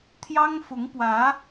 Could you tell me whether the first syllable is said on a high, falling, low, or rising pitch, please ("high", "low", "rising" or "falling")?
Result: high